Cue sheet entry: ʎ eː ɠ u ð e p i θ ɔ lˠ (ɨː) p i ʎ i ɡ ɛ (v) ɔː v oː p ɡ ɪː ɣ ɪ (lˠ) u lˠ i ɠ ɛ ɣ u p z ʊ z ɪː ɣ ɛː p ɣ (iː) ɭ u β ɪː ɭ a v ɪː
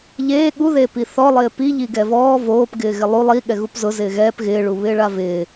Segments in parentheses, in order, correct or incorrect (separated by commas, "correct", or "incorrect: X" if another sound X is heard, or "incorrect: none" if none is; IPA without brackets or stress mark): incorrect: ɪː, correct, correct, incorrect: ɪː